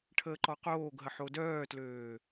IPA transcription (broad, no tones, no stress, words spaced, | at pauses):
ʈʰəːǃɔqoːɡɦə ħodœːtløː